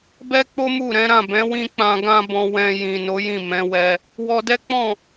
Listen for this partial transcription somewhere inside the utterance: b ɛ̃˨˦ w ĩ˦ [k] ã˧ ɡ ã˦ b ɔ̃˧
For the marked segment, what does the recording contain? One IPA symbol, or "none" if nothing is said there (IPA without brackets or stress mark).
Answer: k͡p